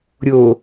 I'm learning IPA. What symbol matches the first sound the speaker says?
ɾʲ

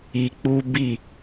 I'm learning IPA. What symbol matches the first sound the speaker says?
i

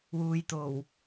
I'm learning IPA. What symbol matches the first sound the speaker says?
w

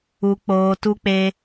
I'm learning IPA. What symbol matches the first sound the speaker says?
u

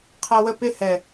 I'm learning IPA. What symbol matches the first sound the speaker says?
qʰ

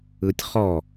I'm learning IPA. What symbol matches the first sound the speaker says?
ɯ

